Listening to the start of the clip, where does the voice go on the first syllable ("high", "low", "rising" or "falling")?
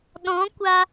rising